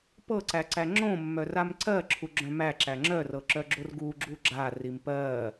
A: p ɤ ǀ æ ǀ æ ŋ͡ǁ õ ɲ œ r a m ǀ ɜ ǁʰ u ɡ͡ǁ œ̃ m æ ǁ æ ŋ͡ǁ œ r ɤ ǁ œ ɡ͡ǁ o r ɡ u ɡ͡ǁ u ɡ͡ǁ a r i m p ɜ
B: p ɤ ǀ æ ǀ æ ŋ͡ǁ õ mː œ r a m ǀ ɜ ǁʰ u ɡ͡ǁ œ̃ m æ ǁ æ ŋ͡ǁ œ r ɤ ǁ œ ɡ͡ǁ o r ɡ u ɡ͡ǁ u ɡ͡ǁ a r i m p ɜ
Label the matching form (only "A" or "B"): B